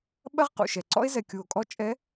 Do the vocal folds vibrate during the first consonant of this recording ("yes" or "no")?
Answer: yes